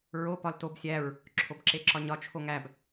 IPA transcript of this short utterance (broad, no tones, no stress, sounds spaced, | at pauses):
ɹ o p ɒ l t o b sʲ æ ɹ | ǁʰ o b ǁ e ǁ ɒ ɲ ɒ t͡ʃʰ o ŋ æ b